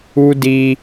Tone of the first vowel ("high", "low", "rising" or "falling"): high